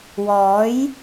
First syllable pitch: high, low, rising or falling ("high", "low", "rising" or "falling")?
rising